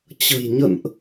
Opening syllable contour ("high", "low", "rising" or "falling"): low